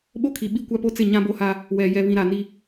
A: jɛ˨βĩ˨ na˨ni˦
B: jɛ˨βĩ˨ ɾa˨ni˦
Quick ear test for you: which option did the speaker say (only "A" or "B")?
B